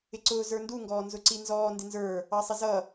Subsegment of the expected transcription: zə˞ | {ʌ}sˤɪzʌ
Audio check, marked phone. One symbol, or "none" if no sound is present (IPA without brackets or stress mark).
ɑ